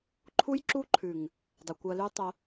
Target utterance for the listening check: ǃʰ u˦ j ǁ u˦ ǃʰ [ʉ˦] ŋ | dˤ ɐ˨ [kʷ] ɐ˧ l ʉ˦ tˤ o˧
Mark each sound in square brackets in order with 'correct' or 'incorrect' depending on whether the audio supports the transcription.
incorrect, correct

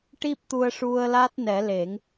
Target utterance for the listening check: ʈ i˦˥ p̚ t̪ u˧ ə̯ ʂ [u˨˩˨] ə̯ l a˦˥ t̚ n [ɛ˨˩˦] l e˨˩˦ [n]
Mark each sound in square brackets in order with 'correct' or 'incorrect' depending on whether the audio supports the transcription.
incorrect, correct, incorrect

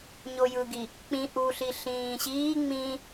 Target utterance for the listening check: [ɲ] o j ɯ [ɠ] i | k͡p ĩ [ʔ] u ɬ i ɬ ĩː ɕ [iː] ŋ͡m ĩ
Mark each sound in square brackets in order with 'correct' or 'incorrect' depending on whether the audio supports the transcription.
correct, incorrect, correct, correct

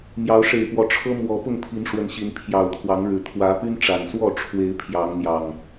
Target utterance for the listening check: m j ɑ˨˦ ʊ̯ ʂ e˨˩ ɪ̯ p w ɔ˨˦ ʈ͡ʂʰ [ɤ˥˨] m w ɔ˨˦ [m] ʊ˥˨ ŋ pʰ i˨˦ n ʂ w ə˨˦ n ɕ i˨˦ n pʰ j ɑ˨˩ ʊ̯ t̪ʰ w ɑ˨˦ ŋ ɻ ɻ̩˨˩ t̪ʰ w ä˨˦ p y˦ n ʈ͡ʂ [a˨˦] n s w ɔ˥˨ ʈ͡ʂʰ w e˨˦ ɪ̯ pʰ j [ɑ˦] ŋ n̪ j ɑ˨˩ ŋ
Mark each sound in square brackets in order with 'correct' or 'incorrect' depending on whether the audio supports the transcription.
incorrect, incorrect, incorrect, incorrect

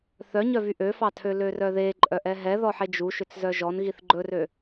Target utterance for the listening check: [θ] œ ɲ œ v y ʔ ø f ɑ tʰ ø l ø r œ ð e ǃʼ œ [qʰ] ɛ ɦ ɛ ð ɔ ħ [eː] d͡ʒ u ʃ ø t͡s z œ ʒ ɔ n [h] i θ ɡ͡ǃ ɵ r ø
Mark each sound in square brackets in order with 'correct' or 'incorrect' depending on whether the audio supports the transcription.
correct, incorrect, incorrect, incorrect

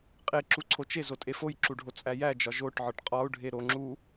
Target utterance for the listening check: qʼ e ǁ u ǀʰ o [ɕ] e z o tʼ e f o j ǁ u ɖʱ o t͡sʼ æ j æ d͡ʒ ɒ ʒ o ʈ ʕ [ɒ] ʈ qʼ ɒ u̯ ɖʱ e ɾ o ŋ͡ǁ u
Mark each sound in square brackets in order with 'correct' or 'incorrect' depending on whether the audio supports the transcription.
incorrect, correct

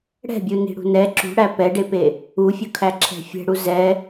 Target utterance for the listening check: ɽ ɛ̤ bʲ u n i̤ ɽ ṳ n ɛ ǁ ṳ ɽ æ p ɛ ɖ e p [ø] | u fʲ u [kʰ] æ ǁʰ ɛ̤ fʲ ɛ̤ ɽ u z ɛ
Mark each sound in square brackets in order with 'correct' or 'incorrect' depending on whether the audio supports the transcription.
incorrect, correct

